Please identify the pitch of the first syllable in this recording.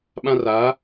high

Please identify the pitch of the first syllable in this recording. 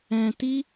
low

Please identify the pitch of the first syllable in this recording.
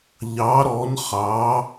rising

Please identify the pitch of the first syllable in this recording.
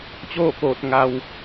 falling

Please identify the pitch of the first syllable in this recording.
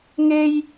high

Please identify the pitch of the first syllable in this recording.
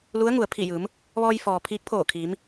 rising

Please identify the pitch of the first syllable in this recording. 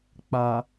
low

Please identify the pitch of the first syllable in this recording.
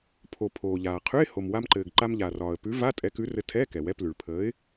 low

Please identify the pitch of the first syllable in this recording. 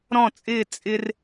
falling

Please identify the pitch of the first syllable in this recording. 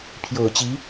low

